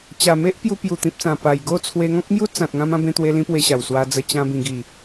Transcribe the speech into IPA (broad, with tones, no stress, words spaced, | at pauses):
t͡ɕa˨˩me˦ʔ pju˧pju˨˩t̪ĩ˨p̚t͡sã˨˩ pa˨˩jɡo˥˧ t͡sʰwe˧ŋɔ̃˦k̚mju˦ t͡sã˨t̚ŋã˧m ã˧bẽ˧t̪we˧lĩ˧ pwe˧ɕa˨˩wswa˧ d͡zə˧t͡ɕã˧ bĩ˨˩ɡi˨˩